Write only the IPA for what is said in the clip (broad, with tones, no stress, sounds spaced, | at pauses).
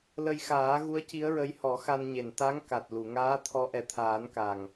l ə˧ j x aː˨˩˦ ɣ u˧˥ ə̯ c i˧˥ ə̯ ɹ ə˧˥ j h ɔ˨˩˦ x a˧ n ɲ e˨˩ n t̪ a˧˥ ŋ k a˨˩ t̚ l u˨˩˨ ŋ aː˧˥ t̪ʰ ɔ˧˥ ʔ ɛ˨˩ t̪ʰ aː˨˩˦ n k a˨˩ ŋ